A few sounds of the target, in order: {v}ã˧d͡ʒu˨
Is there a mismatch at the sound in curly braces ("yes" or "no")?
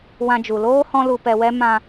yes